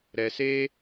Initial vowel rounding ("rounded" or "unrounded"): unrounded